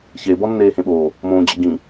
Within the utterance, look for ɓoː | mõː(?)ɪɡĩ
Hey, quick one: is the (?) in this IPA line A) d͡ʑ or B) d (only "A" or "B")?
A